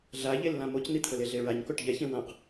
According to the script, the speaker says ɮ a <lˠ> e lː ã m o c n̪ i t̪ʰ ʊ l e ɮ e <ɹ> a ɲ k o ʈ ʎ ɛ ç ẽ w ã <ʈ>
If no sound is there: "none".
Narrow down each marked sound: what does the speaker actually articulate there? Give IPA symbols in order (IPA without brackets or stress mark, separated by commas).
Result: ʎ, ɹ, q